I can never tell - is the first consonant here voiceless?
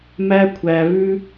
no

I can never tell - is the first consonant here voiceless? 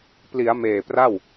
yes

